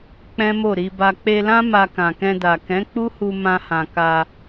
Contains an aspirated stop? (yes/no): no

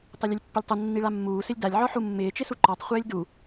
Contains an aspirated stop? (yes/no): no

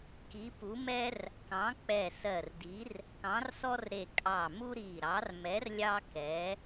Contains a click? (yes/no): no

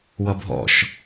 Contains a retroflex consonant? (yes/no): no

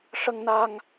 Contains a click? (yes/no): no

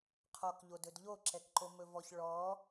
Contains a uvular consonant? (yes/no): yes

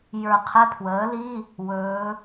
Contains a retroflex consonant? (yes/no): no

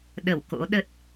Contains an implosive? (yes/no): yes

